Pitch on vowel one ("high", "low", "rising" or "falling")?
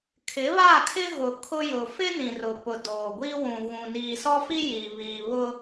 rising